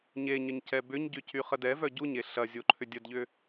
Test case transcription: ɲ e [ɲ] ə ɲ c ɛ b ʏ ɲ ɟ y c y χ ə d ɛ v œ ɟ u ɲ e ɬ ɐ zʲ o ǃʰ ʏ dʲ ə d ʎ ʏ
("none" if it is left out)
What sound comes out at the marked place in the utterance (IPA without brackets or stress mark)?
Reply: ɲ